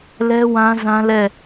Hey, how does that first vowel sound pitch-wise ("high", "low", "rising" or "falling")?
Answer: high